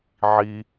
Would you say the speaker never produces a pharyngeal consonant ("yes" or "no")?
no